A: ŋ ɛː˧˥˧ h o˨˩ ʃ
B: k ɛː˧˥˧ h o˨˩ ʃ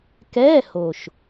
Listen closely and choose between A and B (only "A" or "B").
B